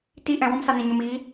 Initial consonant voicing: voiceless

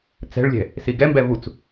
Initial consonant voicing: voiceless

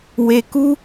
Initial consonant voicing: voiced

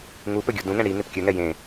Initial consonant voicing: voiced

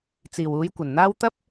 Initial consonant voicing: voiceless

